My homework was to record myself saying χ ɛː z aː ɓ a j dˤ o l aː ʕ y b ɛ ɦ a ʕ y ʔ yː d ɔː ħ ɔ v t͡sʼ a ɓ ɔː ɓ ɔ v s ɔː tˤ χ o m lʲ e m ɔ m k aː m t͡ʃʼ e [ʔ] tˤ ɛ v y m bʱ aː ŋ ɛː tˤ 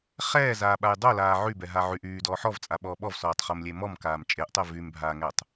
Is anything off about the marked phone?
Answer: no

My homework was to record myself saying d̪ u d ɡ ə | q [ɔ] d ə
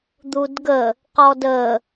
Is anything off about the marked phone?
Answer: no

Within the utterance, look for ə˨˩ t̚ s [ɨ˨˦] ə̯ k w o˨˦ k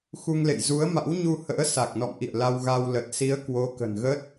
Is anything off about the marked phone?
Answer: yes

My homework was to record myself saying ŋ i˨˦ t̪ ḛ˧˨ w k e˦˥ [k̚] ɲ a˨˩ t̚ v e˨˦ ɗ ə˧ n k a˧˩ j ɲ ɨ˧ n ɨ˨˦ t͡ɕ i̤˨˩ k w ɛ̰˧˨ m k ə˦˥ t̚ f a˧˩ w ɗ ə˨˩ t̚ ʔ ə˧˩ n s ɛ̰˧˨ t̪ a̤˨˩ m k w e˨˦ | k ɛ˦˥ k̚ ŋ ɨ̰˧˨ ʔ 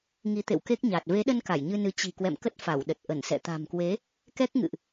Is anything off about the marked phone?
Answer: no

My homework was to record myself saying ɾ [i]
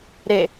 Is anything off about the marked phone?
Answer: yes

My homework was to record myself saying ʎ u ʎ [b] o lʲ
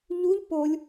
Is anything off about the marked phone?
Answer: yes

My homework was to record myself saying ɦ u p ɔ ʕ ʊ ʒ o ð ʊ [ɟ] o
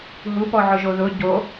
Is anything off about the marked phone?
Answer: no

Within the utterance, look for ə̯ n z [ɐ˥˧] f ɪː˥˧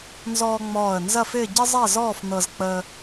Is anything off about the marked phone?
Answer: no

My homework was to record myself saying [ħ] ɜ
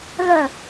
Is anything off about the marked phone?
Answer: yes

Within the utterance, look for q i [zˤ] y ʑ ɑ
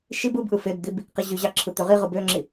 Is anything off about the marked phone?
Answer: yes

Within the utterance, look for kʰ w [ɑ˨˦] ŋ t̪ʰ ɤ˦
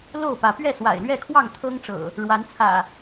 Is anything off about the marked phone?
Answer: yes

